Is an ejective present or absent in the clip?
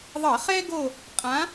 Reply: present